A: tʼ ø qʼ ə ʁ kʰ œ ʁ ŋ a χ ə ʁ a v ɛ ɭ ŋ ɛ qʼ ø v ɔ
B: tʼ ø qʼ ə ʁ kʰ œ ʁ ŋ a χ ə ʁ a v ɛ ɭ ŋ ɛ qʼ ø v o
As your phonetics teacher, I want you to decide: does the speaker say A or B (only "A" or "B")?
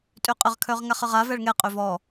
A